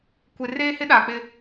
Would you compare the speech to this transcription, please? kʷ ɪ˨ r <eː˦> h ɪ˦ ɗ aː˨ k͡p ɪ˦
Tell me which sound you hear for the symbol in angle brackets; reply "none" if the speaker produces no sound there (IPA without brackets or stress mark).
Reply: eː˦